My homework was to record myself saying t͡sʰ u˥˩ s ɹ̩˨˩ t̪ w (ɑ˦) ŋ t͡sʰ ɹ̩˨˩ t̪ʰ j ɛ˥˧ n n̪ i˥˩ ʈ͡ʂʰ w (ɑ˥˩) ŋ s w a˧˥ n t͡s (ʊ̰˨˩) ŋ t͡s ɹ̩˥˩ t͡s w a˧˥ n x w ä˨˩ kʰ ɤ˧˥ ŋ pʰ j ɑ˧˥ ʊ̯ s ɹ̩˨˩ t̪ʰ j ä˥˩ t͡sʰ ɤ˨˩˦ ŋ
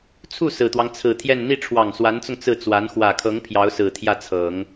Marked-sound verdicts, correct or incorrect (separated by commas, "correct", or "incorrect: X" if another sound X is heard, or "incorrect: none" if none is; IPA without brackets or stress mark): correct, incorrect: ɑ˨˩, incorrect: ʊ˧